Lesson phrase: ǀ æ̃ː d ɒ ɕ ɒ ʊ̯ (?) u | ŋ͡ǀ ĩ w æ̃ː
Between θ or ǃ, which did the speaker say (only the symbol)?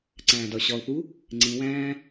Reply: θ